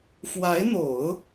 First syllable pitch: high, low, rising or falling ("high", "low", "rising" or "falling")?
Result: rising